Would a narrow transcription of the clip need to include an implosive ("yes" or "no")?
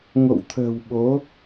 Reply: yes